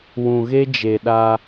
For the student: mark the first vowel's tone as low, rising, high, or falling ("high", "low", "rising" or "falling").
low